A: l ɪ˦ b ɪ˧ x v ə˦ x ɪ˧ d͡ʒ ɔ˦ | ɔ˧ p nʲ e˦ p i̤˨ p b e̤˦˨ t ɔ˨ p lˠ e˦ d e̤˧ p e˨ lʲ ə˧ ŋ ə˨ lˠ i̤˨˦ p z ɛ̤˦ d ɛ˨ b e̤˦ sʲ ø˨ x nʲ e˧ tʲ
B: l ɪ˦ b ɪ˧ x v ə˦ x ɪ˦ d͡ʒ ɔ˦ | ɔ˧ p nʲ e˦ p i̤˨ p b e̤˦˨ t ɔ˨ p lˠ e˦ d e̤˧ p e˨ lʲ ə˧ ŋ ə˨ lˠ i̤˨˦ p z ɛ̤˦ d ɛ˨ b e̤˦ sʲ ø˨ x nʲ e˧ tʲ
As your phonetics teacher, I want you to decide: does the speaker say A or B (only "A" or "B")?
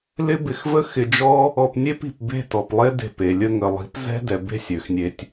A